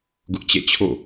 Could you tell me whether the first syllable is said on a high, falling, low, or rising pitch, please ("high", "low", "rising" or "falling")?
high